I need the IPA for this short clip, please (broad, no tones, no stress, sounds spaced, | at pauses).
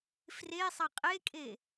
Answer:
f r e sˤ ɐ qʼ e kʼ e